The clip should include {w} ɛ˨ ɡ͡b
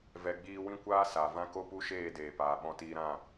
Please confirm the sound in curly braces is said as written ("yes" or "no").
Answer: no